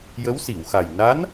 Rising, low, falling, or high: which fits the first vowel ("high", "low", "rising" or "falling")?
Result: rising